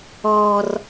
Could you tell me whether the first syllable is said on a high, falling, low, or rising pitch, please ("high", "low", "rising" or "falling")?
high